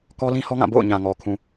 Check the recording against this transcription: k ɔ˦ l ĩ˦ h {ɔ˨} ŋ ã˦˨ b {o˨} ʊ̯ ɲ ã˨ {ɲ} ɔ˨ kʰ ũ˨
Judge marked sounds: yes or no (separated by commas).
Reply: no, no, no